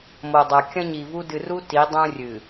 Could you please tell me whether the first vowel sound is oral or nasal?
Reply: oral